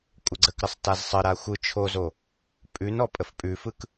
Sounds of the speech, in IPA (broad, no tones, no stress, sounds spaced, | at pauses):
kʷʼ ə ɡ͡ǀ ə k ɾ ə sˤ t a z sˤ ə ɾ a xʷ ɯ t͡ʃʰ o z o | pʼ ʉ n ɔ pʼ ə f pʼ ʉ f ɯ k